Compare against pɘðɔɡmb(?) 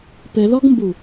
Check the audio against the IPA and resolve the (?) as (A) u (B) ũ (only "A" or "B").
A